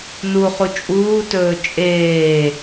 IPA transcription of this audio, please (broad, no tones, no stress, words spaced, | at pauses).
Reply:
nuχu t͡ʃʼuːtɵː t͡ʃʼeː